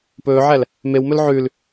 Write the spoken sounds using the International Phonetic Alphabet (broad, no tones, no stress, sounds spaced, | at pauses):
p ɵː ʕ æ l | m e w m ɵ l ʕ ʉ l